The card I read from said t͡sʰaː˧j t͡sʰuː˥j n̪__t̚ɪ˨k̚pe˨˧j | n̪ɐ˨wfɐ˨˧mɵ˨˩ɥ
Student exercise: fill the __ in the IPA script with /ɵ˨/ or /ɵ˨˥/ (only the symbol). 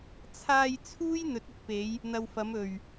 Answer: ɵ˨˥